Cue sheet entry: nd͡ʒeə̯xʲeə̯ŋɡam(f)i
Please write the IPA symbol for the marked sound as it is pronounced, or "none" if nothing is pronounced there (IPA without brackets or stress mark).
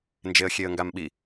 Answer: ɓ